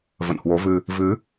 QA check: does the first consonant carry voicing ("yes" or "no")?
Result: yes